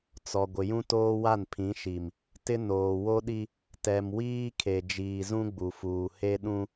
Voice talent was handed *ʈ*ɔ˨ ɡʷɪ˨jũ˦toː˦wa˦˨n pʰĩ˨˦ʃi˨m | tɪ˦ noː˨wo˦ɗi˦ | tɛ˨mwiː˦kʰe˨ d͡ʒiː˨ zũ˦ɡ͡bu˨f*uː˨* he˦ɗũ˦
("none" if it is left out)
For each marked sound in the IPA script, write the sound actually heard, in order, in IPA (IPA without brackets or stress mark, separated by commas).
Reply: t͡s, uː˨